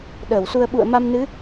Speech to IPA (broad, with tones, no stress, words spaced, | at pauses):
ɗəː˧˩wsu˧ə̯ ɓṵ˧˨ə̯ma˧mnɨ˨˦